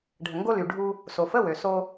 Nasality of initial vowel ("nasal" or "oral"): oral